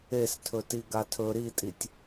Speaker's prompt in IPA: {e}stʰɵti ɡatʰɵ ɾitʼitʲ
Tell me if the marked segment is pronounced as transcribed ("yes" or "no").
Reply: yes